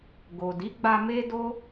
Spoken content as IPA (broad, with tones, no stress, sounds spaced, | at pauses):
ɡ o˨ d i˨˦ ɡ͡b a˧ m e˦ d o˦